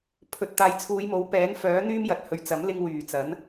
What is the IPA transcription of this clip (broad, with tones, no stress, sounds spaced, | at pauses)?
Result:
pʰ ɵ˨ t̚ t̪ aː˨ j t͡sʰ uː˨˧ j m o˨˥ w p ɛː˨˥ n f œː˨˥ n̪ yː˥ m j ɐ˨ t̚ h ɵ˨ ɥ t͡s ɐ˨˥ m l ɪ˧ ŋ w yː˨˩ t͡s ɐ˨˥ n